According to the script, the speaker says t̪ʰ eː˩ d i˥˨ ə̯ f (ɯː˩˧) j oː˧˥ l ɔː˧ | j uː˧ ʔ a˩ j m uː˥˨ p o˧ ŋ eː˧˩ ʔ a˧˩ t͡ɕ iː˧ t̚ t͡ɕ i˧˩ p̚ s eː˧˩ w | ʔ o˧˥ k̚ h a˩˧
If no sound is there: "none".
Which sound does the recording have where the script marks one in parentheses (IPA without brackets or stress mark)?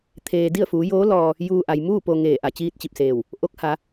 uː˩˧